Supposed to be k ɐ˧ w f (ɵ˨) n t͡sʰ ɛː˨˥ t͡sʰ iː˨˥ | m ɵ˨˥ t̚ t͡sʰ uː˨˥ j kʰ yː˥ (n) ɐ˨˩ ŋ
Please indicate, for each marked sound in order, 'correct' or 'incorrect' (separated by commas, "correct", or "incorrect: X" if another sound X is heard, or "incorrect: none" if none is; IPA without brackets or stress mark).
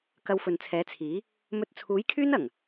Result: correct, correct